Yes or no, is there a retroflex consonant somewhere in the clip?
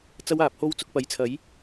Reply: no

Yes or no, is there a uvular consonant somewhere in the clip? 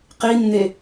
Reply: yes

